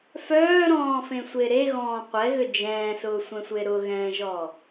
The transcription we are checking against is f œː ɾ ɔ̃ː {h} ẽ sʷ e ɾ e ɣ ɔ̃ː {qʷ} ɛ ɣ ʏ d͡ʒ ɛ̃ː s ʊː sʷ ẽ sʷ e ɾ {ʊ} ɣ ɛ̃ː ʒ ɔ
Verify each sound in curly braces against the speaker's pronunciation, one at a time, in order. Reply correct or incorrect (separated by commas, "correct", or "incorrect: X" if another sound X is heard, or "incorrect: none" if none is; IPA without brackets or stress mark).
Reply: incorrect: f, correct, correct